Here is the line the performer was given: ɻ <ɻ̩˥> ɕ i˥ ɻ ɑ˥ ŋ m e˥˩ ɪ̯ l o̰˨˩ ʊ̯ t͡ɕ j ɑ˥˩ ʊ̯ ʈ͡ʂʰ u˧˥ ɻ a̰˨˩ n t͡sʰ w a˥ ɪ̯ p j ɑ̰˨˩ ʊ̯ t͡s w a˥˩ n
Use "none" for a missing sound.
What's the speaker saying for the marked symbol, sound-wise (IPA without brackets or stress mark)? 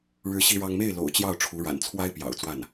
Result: ɻ̩˥